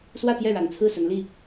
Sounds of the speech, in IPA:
swä˥˧t̪jɛ˥˩ɻa˨˩n t͡sʰɹ̩˥˩sə˧˥nli˥˩

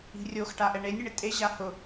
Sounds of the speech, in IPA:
i̤rʲoxʈaʔɛ ɳenʲɪɳɪ tʼe ʑahʊ

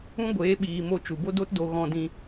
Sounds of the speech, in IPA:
ũ˦ɡʷeː˨˦ɓiː˨mo˧ t͡ʃu˨bo˦do˦tdo˧ ɣɔ̃˧dĩ˧

